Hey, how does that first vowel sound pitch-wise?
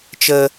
high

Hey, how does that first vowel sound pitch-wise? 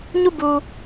falling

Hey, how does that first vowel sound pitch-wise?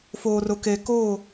low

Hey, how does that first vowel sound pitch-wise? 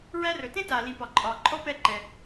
high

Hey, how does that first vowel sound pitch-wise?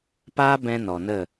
high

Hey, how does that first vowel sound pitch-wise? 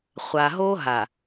low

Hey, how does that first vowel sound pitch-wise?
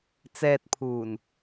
low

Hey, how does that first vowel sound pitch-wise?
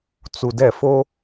low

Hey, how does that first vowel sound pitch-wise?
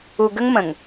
low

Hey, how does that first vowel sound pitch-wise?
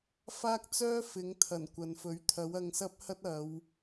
high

